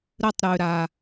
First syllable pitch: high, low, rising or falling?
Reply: high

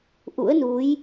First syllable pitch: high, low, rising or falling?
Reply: rising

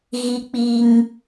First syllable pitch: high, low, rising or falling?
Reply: low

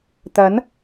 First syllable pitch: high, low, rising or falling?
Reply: rising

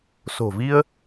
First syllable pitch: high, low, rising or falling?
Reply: low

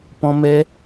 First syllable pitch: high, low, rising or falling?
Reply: high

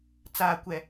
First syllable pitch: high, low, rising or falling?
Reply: low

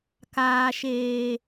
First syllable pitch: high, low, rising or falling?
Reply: low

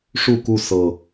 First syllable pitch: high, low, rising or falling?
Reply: falling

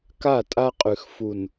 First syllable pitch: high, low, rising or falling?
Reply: falling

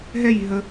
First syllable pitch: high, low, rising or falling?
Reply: falling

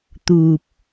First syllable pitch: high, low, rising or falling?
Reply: low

